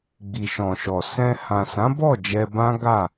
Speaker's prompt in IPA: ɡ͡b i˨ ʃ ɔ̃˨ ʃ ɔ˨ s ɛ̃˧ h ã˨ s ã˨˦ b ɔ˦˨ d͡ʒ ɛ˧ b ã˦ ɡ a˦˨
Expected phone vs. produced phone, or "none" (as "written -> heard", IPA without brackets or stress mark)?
none